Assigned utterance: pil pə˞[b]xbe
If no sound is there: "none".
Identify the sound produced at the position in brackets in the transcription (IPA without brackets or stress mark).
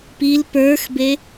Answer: none